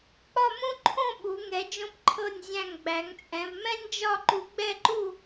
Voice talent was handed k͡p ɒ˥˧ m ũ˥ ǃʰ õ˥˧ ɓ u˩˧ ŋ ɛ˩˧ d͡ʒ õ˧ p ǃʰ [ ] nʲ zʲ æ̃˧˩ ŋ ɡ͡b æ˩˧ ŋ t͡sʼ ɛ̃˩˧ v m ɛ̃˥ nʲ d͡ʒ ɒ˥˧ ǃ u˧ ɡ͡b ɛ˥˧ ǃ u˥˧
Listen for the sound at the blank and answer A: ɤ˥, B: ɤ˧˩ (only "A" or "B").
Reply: B